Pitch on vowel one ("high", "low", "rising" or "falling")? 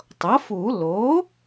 rising